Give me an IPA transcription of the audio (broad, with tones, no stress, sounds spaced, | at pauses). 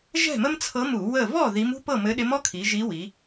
ʒ ɛ̤˥˨ m ə˥ m t͡sʰ ɤ˧˥ m u˧˩˧ w ə˥˨ v ɔ˥˨ ð i˧˥ m ṳ˥ p ɤ˥˨ m ɘ˧˥ ɗ ɪ˧˥ m ɔ˥ kʰ i˩˧ ʒ i˧˥ w i˩˧